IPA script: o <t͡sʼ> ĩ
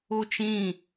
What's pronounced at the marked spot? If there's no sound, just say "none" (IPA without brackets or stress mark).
t͡ʃ